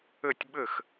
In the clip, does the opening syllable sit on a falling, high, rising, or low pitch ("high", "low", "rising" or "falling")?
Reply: falling